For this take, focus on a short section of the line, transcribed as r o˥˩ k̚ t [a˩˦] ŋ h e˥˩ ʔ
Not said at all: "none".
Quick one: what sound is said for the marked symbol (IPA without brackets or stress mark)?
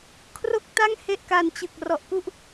a˥˩